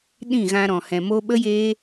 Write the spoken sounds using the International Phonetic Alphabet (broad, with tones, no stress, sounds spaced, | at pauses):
ɗ ĩ˦˨ ɣ ã˧ ɾ ɔ̃˨ h ɛ̃˨ m o˧ ɓ ə˦ j eː˦